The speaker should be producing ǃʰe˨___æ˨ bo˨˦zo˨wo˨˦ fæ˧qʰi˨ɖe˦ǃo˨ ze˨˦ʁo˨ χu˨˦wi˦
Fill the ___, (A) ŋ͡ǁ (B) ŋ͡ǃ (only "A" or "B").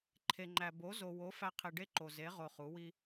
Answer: B